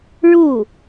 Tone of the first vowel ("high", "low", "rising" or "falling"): falling